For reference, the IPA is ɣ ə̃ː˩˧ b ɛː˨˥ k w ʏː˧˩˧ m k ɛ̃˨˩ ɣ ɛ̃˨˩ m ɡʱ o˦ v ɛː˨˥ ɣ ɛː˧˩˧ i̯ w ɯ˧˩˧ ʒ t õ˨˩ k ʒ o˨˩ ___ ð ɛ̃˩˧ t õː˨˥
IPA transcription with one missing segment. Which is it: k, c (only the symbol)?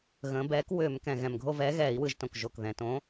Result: k